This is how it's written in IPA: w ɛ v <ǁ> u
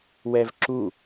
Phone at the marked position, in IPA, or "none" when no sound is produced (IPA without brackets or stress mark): ǁ